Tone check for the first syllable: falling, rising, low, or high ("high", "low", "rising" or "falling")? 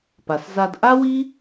low